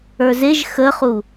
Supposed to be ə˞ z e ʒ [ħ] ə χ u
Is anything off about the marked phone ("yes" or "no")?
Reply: yes